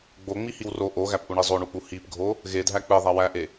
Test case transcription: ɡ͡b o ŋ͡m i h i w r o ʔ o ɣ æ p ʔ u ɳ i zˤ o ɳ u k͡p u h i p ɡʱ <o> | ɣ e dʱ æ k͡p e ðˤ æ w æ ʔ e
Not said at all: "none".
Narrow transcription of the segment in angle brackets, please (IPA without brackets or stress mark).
o